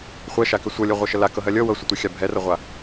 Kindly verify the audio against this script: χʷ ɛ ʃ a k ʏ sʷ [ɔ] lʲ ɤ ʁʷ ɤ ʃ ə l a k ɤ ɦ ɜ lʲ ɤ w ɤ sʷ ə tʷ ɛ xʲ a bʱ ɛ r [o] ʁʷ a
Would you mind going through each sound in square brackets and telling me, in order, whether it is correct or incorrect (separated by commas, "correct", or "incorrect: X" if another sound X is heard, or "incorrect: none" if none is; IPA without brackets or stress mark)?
incorrect: ɤ, incorrect: ɤ